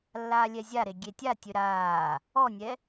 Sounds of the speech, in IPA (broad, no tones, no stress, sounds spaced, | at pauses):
lː aː lʲ ɛ zʲ a ɾ e ɡʲ e tʲ a tʲ ø ɾ aː | ɔ nʲ ɛ